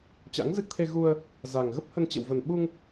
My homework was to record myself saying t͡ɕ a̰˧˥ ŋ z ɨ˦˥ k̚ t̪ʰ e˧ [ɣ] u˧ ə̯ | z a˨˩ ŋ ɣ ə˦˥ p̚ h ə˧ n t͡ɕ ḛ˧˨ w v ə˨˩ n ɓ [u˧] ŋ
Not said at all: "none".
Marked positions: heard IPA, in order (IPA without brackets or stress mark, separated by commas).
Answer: ɣ, u˧